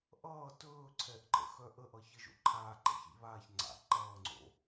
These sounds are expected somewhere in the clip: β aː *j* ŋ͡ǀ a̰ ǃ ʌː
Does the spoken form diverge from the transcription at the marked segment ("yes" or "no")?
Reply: yes